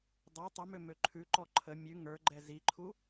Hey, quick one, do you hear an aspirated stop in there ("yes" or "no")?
yes